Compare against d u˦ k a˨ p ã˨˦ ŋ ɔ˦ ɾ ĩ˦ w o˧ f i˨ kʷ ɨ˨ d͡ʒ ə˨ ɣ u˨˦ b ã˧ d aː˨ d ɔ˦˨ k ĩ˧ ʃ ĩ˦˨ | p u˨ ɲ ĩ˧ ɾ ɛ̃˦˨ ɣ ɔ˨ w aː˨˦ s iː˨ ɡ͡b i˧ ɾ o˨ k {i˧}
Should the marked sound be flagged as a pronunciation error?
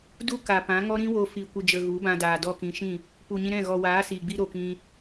yes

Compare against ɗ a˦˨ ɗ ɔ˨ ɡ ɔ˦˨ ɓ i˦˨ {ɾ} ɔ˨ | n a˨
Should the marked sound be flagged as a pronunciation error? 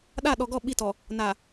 yes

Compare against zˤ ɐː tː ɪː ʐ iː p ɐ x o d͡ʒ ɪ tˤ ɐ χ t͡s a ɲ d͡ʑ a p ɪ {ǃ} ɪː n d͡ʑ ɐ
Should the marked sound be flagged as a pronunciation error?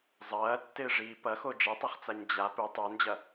yes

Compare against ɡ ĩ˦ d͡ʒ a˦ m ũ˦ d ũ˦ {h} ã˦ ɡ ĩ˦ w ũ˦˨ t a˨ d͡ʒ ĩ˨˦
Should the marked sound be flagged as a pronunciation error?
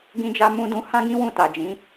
no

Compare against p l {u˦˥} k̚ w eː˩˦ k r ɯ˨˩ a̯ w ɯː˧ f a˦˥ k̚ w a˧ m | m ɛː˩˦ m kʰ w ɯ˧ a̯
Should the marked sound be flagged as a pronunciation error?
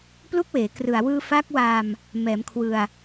no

